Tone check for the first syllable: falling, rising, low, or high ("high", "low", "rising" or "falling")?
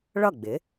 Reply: falling